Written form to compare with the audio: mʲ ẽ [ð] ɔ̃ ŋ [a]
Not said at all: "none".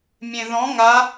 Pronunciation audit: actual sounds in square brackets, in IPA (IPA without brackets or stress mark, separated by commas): ð, a